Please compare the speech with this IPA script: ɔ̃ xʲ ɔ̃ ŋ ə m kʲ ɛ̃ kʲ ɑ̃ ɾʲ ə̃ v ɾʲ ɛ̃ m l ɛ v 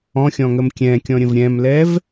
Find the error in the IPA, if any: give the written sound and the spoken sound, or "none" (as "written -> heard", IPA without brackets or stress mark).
ɑ̃ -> ɔ̃